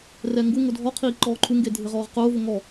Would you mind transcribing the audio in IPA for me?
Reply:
r ɛ ŋ ɡ u ŋ ʊ dʱ ɔ qʰ iː ǃ ɔː ǃʰ u ŋ ɡ e dʱ ɪ ʁ ɔː ʁ q ʊː v ʊ ŋ ɔ

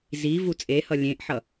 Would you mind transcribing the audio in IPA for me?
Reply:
z i v u t͡sʼ e h ʌ lʲ ẽ ʔ ħ ʌ

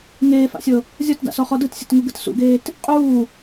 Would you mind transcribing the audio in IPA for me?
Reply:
ŋ eː f a̰ sʲ ɤ | zʲ ɔ t d a̰ s ɔ χ ɔ d ɯ t sʲ ɤ t ŋ u ɡ ɯ t s ṵ ɡ eː t | qʼ uː

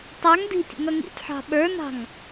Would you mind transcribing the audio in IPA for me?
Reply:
tˤ ɑ ŋ d i̤ tʲ ə̰ ŋ ʌ ŋ ḭ tʲ ħ ɑ̤ ɓ ə˞ n ɑ̤ ŋ

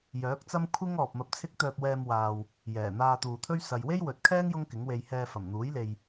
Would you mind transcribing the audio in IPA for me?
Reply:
j œː˨˥ k̚ t͡s ɐ˥ m kʷʰ ɪ˥ ŋ ɔː˨ p̚ m ɐ˧ p̚ t͡sʰ ɪ˥ k̚ t̪ œː˧ p̚ w ɛː˧ m w aː˨ w | j ɛː˨˩ n̪ aː˧ t̪ uː˨ t̪ʰ ɵ˥ ɥ s ɐ˨ j w e˥ j w ɵ˨ t̚ kʰ ɛː˥ ŋ j ʊ˥ ŋ k ɪ˨˥ ŋ w e˧ j h ɛː˧ f ɐ˨˩ m n̪ uː˨˥ j l e˨ j

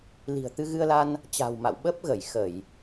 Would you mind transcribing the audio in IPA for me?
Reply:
l i̤˨˩ ə̯ t̪ ɨ˧ ɣ ɨ˧ ə̯ l a˧ n | t͡ɕ a̤˨˩ w m a̰˧˨ w ɓ ə˦˥ p̚ ɣ ə˧˩ j x ə˧˩˨ j

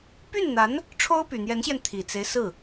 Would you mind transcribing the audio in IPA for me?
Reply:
p y˥˩ n n̪ a˧˥ n | ʈ͡ʂʰ o˥ ʊ̯ p y˨˩ n̪ j ɛ˧˥ n ɕ j ɛ˧ n t̪ʰ i˨˩ t͡s e˦ ɪ̯ s ɹ̩˥˩

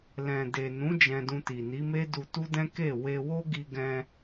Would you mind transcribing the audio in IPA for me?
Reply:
l ɛ̃˨ d e˨ n ũ˨˦ d͡ʒ ɛ̃˧ d ũ˧ t i˨ n i˨˦ m e˦ d u˧ t u˦ d ɛ̃˦ k e˦˨ w e˧ w o˦ ɡ i˧ ɡ ɛ̃˧

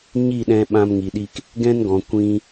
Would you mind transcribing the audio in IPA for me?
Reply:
ɲ i˦˨ ɗ ɛ̃˧ ɓ ã˧ m ŋ i˨ ɗ i˧ k | ɡ ɛ̃˦ n ɡ ɔ̃˨ kʷ ĩ˧

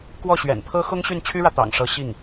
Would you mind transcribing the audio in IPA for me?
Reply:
k w ɔ˥˩ ɕ ɥ ɛ̰˨˩ n pʰ ɤ˥ x ʊ˥ ŋ ɕ y˥˩ n t͡ɕʰ y˥ ɻ ä˨ t̪ ɑ̰˨˩ ŋ ʂ ɤ˧˥ ɕ i˥˩ ŋ

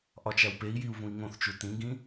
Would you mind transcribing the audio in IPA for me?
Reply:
ʔ ɒ t͡ʃ æ w p e i̯ j i u̯ v ũ i̯ ŋ õ θ t͡ʃ u t ĩ ɡ ĩ

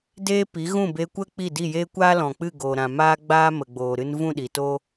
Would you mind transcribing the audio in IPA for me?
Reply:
d eː˦ p i˨˦ ɣ ũ˦˨ b e˧ kʷ ə˦ k͡p i˦˨ d i˦˨ j eː˦ kʷ aː˦ l ɔ̃˨ k͡p ɨ˦˨ ɡ o˨ ɾ ã˨ m aː˦ ɡ͡b aː˦ m ə˨ ɡ͡b oː˨ ɾ ɨ˧ n v ũ˦˨ ɗ i˨ t o˦

